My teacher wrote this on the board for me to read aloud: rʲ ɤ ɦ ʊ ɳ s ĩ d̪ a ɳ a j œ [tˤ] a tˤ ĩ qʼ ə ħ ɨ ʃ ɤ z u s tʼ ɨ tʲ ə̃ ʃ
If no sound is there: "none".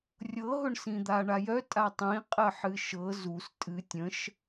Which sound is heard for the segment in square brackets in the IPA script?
tʼ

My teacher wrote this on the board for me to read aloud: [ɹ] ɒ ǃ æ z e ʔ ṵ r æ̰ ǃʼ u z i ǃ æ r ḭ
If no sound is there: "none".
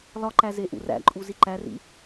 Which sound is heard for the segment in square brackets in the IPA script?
l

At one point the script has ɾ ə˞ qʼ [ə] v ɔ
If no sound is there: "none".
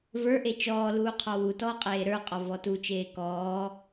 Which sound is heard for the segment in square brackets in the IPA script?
ɔ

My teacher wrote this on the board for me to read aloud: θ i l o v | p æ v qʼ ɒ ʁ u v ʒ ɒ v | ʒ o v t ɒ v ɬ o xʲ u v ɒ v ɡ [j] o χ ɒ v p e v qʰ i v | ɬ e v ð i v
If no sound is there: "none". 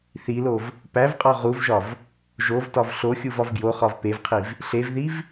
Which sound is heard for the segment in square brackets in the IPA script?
j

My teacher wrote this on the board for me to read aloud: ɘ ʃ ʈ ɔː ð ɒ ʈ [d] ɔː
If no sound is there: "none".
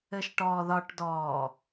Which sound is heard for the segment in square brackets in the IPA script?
d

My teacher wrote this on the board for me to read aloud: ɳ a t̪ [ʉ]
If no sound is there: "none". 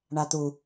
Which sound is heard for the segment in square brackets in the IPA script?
u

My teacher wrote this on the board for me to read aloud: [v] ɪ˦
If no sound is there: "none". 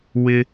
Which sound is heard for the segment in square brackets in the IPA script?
w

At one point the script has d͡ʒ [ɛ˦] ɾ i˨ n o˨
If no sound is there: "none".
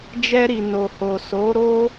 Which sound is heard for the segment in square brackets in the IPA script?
ɛ˧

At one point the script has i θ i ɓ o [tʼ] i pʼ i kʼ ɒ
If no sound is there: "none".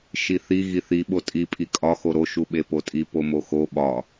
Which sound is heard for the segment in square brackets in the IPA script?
tʼ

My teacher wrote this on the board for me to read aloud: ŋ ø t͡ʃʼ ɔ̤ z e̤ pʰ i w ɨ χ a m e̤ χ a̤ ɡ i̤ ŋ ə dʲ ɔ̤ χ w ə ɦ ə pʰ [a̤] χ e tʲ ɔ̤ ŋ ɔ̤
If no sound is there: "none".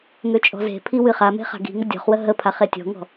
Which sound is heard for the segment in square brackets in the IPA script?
a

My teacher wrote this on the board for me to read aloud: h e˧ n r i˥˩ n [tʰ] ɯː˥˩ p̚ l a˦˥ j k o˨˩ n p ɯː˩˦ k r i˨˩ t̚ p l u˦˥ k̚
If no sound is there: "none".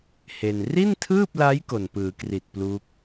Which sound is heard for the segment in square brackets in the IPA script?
tʰ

